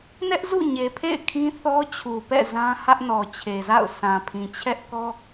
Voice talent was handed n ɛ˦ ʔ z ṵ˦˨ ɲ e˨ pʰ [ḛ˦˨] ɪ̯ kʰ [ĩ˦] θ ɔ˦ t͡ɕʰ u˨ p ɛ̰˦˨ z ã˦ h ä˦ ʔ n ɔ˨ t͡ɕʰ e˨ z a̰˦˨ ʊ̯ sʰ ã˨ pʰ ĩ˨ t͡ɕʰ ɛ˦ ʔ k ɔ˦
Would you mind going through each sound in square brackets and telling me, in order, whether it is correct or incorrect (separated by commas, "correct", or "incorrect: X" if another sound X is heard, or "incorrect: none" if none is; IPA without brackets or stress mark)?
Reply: correct, correct